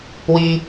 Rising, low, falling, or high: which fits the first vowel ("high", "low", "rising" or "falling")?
low